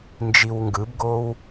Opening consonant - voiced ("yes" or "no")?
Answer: yes